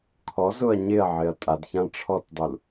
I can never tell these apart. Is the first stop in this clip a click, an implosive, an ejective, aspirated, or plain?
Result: aspirated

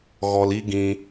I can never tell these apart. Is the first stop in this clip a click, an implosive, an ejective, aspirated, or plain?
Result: plain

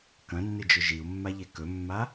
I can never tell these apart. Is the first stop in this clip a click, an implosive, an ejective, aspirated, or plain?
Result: plain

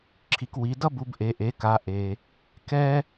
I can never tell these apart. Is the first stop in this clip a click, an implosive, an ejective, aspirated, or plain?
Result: click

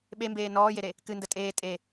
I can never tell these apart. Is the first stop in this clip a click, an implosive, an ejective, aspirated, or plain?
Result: implosive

